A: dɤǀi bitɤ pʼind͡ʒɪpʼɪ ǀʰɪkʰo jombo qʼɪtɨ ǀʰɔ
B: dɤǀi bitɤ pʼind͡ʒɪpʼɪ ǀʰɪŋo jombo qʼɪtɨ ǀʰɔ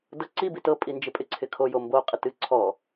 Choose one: A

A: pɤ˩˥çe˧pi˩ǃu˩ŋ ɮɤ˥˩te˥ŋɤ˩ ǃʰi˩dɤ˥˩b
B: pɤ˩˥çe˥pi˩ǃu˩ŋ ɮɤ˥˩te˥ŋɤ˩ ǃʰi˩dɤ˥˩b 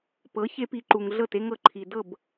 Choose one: A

